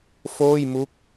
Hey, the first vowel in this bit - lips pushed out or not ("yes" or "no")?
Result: yes